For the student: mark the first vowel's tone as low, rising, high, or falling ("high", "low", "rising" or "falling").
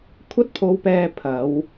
high